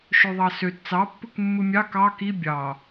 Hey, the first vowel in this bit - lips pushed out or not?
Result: yes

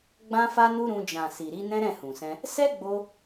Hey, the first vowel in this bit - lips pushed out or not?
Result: no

